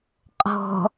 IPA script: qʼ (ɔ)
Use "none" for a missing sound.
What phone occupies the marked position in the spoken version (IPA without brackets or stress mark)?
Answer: ɔ̤